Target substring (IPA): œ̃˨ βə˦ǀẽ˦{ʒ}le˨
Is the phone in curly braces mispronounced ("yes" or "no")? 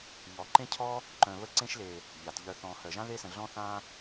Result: yes